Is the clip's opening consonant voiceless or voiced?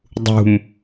voiced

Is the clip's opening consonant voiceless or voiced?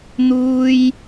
voiced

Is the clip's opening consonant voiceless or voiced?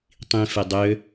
voiceless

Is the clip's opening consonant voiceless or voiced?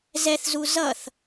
voiced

